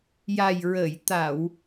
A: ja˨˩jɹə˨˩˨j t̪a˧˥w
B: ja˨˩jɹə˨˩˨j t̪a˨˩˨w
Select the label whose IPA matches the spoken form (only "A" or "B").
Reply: B